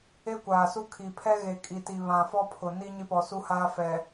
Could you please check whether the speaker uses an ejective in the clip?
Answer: yes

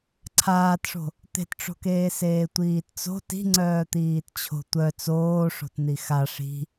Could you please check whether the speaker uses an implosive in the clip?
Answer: no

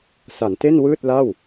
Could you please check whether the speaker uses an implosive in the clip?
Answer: no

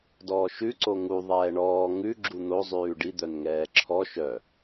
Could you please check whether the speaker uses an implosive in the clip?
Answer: no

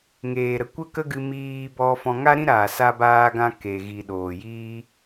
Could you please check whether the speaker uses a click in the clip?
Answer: no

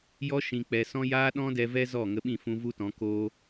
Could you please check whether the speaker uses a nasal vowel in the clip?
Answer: yes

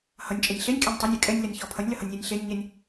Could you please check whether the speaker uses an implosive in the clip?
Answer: no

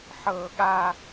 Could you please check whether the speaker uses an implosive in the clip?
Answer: yes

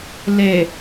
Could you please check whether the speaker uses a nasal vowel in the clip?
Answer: no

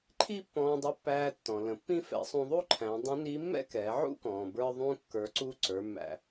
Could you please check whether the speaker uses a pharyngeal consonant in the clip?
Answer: yes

